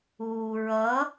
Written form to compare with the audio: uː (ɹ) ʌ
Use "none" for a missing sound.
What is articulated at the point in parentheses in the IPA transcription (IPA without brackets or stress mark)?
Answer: ɹ